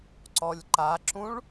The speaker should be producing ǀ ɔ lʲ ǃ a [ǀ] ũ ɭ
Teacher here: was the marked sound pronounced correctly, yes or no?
no